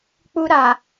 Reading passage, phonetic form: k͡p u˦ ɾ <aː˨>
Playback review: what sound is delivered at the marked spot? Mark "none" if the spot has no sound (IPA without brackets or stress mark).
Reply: aː˨